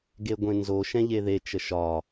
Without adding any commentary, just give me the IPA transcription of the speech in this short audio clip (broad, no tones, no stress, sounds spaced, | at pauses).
ɡ e ɡʷ ẽ n z o ʃ ɛ̃ ʎ e ð e t͡ʃ ə ʃ ɒ